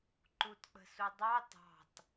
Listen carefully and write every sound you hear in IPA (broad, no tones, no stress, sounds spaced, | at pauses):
ǃ u t k͡p ə̤ s u dˤ ɑ t ɑ̤ t